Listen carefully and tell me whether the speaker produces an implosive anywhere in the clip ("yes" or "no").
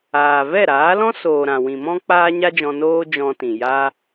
no